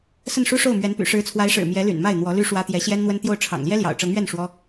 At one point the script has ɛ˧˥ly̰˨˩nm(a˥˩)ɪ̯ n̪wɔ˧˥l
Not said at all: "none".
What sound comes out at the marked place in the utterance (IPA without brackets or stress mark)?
a˥˩